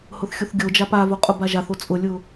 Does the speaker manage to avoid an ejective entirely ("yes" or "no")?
no